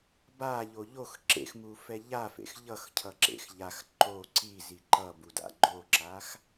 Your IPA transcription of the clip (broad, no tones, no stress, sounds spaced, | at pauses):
b a ʎ o ʎ o x ǁ ḛ x m u f ɛ ʎ a f ḛ x ʎ ʌ x cʰ ʌ ǁ ḛ x ʎ a x ǃ o ǀ i z i ǃ ʌ b u d a̰ ɡ͡ǃ o ǁ a x